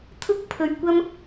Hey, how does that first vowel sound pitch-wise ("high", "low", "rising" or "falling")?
high